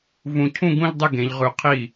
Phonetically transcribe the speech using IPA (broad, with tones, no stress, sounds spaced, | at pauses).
v ũ˧˩ cʰ ũ˥˧ ɡ ũ˥˧ ʎ dˤ ɨ˥˩ ɡ ẽ˨˦ ʎ ʁ ʉ˨˦ qʰ i˥˩